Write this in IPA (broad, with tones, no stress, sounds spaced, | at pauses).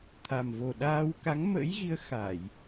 t̪ʰ a˨˩ m v o˨˩ ɗ aː˧ w k a˨˦ ŋ m ə̰˧˥ j ɣ i˨˦ ə̯ x a˧˩˨ j